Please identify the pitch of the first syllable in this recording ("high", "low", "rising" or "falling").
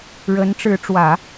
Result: rising